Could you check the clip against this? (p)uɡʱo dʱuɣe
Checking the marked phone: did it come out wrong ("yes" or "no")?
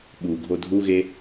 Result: yes